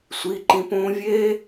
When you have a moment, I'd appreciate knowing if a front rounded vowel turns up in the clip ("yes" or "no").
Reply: no